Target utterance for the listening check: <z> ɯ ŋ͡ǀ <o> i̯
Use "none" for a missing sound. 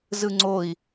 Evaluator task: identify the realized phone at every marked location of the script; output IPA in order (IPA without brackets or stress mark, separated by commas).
z, o